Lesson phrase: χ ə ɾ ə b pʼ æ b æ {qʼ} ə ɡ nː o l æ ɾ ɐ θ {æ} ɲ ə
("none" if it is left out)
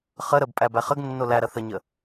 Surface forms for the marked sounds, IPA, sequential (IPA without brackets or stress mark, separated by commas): χ, ə